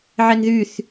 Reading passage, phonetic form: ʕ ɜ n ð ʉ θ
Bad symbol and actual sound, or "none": none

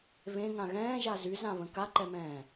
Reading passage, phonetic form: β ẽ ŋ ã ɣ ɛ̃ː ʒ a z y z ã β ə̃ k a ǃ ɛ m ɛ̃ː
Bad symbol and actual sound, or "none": none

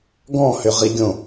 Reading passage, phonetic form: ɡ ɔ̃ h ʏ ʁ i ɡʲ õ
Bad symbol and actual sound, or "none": none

